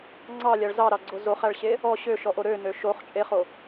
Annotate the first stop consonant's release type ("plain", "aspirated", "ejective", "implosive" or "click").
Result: click